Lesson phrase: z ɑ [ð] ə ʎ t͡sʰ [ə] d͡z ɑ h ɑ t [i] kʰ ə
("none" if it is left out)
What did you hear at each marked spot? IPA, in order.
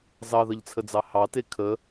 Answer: ð, ə, e

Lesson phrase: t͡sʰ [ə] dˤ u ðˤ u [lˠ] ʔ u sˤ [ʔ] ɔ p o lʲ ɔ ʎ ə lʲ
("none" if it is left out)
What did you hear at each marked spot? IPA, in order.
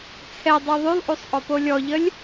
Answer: ɛ, lˠ, ʔ

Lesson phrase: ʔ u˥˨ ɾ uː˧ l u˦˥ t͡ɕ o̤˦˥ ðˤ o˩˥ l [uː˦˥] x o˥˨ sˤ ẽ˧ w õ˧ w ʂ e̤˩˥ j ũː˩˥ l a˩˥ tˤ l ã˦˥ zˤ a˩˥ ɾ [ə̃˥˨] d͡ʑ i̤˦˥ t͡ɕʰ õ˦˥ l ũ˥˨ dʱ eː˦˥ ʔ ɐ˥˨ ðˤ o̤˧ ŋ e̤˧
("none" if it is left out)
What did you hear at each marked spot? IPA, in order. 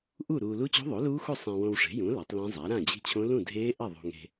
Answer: uː˦˥, ã˥˨

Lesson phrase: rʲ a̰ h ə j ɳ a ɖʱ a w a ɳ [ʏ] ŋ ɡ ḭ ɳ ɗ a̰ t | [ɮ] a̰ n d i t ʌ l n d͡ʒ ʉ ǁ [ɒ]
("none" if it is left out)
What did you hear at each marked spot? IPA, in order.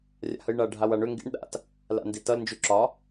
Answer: ʏ, l, ɒ

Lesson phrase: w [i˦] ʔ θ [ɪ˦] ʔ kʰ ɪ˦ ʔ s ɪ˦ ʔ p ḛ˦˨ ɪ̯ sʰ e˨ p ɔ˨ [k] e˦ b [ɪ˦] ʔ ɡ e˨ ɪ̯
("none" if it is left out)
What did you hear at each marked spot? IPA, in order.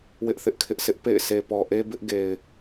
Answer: ɪ˦, ɪ˦, ʔ, ɪ˦

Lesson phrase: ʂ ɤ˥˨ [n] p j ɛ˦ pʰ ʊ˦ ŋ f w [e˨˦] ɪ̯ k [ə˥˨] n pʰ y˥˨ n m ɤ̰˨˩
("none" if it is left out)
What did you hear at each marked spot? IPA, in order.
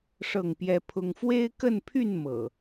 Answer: ŋ, e˦, ə˥˨

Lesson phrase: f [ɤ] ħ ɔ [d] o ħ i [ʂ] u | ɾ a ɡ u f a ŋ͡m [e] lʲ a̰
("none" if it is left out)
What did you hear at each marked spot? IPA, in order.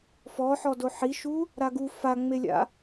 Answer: ɔ, d, ʃ, e

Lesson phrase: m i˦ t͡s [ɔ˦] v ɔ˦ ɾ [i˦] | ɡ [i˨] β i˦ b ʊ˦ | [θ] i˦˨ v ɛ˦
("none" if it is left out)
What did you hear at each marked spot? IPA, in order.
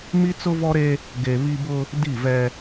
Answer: ʊ˦, e˦, e˨, d

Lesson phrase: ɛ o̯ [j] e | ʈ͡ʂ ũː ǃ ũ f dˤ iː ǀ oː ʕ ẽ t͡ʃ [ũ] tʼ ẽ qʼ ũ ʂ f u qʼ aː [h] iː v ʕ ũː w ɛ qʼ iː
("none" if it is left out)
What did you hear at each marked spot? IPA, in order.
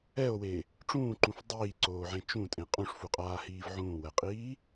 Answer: w, ũ, h

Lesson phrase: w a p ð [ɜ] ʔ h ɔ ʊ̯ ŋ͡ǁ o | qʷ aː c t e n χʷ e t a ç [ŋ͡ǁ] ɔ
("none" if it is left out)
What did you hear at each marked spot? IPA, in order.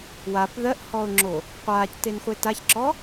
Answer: ɜ, ǁ

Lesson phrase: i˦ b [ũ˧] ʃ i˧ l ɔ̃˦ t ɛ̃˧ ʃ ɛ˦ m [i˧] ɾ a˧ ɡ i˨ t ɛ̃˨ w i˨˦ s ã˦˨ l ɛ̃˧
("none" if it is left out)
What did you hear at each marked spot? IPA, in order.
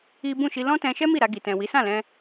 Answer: ũ˦˨, i˦˨

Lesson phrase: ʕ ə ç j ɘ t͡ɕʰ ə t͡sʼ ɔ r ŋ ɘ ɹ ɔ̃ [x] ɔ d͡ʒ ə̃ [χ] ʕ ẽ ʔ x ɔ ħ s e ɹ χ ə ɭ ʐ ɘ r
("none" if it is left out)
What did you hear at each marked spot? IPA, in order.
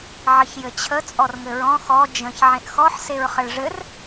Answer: x, ç

